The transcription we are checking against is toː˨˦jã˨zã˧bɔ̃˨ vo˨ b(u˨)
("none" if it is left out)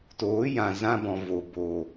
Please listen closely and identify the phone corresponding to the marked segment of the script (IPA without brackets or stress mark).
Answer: o˨